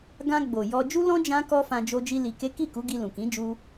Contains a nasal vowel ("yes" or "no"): yes